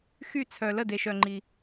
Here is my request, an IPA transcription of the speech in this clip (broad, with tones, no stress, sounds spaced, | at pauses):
x y˥˨ t͡sʰ œ˧ l ə˥˨ d e˧ ʃ œ˧ ŋ͡ǃ i˧